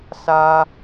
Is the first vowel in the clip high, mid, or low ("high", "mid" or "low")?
low